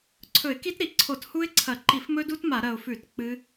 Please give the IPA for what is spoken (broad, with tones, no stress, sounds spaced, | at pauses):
ǀʰ ɵ˧˩˧ ɪ̯ k i˦˥ t ɾ i˨˩ ǀʰ o˧˩˧ t h u˦˥ ɪ̯ ǀʰ ɐ˧˩˧ ǃ i˧˩˧ f m ɵ˦˥ d u˦˥ t m a˧˩˧ ɾ ɐ˨˩ ʊ̯ f ʉ˧˩˧ t k͡p ɨ˦˥